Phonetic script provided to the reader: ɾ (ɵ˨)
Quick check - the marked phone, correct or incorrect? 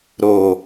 incorrect